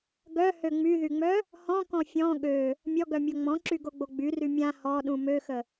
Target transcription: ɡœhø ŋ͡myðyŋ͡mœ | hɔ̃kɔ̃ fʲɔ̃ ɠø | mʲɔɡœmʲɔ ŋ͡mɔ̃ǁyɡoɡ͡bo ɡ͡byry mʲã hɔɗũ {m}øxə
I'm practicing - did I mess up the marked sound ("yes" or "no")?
no